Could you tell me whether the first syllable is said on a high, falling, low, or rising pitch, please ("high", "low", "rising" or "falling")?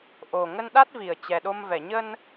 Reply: low